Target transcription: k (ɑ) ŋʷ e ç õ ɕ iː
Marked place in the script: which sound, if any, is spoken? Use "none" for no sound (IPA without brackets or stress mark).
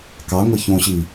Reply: ɑ